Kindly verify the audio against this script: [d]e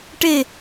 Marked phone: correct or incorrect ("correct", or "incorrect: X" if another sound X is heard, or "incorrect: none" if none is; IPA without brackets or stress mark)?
incorrect: ʈ